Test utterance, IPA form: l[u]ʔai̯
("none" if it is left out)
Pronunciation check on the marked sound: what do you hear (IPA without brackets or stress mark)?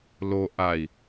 o